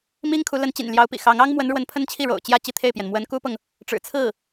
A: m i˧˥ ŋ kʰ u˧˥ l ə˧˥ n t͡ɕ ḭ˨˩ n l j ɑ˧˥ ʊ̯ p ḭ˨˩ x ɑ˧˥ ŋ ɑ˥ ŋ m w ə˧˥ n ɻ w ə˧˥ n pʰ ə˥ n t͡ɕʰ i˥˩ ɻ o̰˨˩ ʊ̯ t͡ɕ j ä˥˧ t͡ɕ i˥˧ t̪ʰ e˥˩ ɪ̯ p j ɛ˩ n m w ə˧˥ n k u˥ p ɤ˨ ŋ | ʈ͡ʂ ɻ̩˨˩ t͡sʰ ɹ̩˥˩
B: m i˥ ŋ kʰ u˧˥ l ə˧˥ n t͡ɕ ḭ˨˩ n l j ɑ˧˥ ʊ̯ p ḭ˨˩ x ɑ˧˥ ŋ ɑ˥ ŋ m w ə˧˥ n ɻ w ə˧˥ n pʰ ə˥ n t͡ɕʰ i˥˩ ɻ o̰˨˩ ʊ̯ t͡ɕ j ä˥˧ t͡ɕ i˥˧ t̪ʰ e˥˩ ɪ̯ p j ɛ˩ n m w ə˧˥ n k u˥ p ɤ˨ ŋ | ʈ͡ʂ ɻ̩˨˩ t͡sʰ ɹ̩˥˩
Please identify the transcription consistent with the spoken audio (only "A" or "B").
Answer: B